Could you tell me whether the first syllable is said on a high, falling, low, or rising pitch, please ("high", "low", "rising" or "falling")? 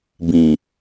low